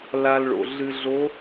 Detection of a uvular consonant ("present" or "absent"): absent